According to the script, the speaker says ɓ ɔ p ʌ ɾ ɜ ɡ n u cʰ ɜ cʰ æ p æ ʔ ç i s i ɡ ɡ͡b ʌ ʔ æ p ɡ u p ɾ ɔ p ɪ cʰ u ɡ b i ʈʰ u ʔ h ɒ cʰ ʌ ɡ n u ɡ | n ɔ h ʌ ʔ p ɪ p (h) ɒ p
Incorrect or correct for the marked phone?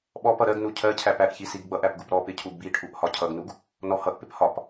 correct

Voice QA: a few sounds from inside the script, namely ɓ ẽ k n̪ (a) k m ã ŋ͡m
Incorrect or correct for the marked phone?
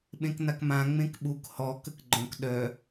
correct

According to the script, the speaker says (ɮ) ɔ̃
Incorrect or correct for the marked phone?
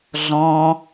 correct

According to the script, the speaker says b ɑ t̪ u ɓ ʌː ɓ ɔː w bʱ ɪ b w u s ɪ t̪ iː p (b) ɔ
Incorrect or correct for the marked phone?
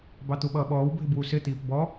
correct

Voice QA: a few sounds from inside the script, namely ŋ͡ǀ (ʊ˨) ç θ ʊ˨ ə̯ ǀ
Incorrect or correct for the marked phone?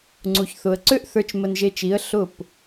incorrect: u˨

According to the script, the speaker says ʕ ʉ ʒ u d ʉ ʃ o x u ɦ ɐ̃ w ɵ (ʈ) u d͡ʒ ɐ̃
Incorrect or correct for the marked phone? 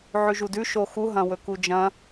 incorrect: k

